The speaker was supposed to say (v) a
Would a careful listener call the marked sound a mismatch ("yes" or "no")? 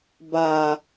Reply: yes